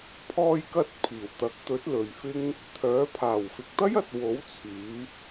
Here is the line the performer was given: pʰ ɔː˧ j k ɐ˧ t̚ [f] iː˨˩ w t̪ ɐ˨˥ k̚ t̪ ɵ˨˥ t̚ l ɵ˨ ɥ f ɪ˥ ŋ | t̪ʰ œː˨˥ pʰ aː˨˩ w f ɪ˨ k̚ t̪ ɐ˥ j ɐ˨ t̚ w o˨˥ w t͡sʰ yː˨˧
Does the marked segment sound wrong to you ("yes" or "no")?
yes